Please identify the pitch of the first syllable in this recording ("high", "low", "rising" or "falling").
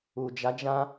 low